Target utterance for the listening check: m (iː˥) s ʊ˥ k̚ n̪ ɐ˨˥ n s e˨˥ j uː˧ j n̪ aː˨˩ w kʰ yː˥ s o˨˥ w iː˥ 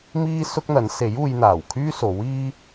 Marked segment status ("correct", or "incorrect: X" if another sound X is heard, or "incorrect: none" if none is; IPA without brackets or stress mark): correct